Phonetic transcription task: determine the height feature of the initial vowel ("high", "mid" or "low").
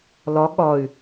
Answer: low